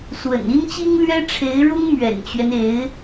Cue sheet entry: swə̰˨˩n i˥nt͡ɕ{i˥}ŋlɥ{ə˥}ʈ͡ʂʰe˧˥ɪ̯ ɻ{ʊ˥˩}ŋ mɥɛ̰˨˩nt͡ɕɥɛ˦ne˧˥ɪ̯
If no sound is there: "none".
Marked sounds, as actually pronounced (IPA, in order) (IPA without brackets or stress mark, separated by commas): i˥, ɛ˥, ʊ˥